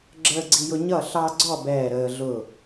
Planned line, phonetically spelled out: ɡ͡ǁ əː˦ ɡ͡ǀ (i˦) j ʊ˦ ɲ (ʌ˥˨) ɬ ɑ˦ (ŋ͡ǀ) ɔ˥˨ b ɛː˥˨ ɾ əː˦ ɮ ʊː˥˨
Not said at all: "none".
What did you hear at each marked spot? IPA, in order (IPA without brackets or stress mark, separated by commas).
i˦, ʌ˥˨, ɡ͡ǀ